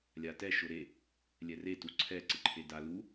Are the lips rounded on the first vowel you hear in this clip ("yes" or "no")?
no